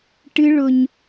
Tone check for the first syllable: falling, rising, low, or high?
high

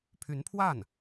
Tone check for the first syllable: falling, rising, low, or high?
rising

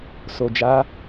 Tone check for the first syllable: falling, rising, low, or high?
low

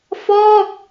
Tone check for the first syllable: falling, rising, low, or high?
falling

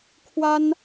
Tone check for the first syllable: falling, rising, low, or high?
high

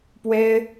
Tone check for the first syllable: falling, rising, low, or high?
high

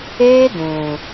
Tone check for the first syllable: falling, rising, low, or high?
high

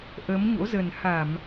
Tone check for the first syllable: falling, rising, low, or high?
rising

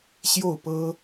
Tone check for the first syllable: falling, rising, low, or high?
falling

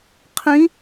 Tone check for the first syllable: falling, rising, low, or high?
rising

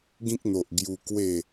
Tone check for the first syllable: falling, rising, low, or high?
high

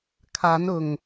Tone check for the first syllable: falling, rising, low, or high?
rising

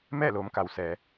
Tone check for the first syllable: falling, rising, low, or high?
falling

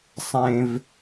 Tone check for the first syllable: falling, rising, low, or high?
low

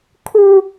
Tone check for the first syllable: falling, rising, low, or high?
high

